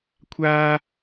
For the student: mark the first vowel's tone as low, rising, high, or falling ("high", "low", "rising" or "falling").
high